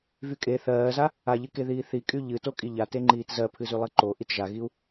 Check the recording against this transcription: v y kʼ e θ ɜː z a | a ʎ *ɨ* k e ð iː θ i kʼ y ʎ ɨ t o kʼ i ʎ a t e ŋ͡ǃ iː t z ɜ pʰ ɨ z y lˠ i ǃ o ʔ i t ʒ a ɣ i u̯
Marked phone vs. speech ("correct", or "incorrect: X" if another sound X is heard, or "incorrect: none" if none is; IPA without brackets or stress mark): correct